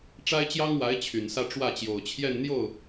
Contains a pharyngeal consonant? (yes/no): no